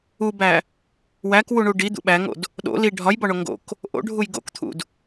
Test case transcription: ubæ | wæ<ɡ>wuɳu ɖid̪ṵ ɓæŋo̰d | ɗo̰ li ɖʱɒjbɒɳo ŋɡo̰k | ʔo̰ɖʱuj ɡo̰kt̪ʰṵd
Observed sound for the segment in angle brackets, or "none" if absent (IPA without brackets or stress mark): k